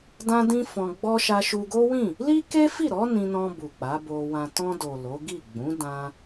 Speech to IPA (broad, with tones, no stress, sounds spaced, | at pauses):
d ã˦ d ĩ˦ f ɔ̃˧ ɡ͡b ɔ˦ ʃ a˧ ʃ u˧ ɡ o˦ w ĩ˦˨ | l i˦ k e˦ f i˦˨ ɾ ɔ˨˦ n ĩ˧ n ɔ̃˧ b u˨ k͡p a˨˦ b o˧ w ã˧ t ɔ̃˧ d o˨ l o˨˦ ɡ i˦˨ ɡ͡b ũ˨˦ d ã˧